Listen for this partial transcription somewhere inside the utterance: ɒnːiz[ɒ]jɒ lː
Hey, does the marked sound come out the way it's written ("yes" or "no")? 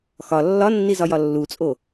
yes